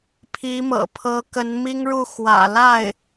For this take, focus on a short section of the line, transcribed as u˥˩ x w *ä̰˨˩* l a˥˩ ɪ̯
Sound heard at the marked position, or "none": ä̰˨˩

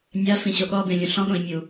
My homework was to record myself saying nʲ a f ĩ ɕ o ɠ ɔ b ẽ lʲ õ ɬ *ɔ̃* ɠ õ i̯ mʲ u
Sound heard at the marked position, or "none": ɔ̃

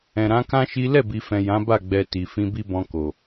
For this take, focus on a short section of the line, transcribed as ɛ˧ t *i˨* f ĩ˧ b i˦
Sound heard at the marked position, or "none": i˨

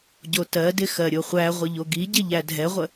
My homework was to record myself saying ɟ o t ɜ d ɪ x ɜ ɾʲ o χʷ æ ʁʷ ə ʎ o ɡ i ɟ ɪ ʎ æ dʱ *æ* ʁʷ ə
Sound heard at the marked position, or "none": ɛ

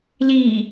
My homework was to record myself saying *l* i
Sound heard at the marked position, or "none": l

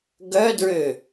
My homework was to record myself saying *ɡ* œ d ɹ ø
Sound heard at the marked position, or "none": ɡ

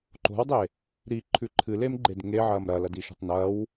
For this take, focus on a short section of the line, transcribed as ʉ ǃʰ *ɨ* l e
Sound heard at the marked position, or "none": ɨ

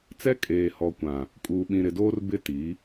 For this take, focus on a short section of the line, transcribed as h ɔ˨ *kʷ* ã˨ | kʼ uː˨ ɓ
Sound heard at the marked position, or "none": kʷ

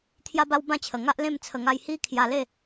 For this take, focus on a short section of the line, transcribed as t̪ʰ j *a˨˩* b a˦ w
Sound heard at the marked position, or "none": a˦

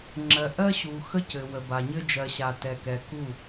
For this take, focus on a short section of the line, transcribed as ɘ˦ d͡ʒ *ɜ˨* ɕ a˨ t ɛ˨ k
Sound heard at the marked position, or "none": ɜ˨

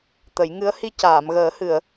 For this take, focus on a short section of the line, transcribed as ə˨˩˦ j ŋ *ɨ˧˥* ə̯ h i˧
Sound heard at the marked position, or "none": ɨ˧˥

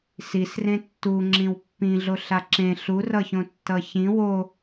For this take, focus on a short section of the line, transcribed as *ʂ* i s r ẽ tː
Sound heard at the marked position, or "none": s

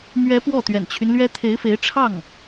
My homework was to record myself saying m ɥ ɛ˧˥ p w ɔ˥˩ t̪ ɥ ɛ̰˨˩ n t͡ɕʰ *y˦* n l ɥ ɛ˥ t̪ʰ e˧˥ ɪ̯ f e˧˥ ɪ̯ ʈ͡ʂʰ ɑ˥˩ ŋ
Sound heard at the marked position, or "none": y˦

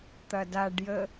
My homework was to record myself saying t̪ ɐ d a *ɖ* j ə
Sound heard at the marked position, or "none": ɖ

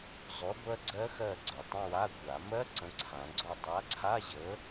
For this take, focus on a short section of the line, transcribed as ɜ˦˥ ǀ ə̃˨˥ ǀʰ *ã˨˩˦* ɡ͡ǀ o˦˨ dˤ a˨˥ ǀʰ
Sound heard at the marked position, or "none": ã˨˩˦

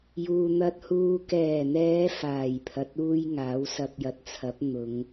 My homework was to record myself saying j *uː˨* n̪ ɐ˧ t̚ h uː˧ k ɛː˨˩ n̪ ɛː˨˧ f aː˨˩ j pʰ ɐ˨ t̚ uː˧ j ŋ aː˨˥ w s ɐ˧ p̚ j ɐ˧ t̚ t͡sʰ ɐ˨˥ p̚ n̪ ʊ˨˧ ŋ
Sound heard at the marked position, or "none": uː˨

